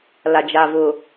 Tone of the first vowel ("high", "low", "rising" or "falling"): low